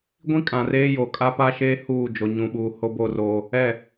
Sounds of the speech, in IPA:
ɡʷĩ˦ kʼã˨reː˦jo˨ kʼa˦pa˦ʃeː˦ huː˦˨ d͡ʒo˨ɲũ˨ɓuː˨ ho˦bo˦˨roː˦ | ɛ˦˨

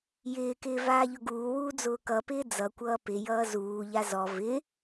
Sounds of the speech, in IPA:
jɪːkɪː vaːʎʊɡuːwuː d͡zʊːkʌpɪː d͡zʌkʷʌː pɪjʌː zuːʎa zɔ vɪ

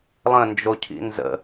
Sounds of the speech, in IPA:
lˠə̃nd͡ʒocʰḭ nzə̰

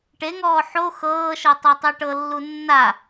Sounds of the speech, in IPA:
ʈeŋɔː ħo xɤːʃɤ tˤatˤɛʈɤlːu nːa

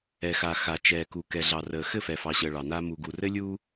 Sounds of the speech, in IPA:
ɛ˨xa˨ xa˨t͡ʃɛː˨ku˨ kɛ˨ɮɑ˨rəː˨ xɘ˦˨fɛ˨fɑ˨ɕəː˨ ɭɑ˨naː˦ mu˨ɡu˨rɘ˦lʲuː˦

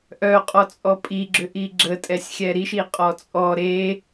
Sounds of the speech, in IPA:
ʔœqʼɔt͡sʼɔ pʼiɡ͡ǁʏʔi ɡ͡ǁətʼɛsʲxʲɛ ɾiʃiqʼɔ t͡sʼɔ ɾe

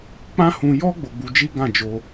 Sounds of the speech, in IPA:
k͡pã˦hũ˧ jɔ˦ ɡ͡bo˧ɡ͡bu˧d͡ʒi˦ ɡã˦˨d͡ʒo˧

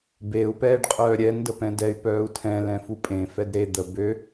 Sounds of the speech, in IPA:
beu̯ pɛːɖqʼœːɾʲɛn dəpɛ̃dɛy̯ pœːu̯tʰɛ̃ lɛ̃fupʼẽ fɛdɾe d̪ə bø

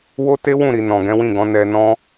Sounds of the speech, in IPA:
wo˦te˦wũ˦˨ɾi˨ nɔ̃˨ɡɛ̃˨˦wĩ˦˨ɡɔ̃˨˦ nɛ˧nɔ̃˦

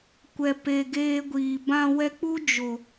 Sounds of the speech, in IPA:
kʷɛ˨pe˨ ɡeː˧ɡʷiː˨ bã˧wɛ˧k͡pu˦ d͡ʒo˨

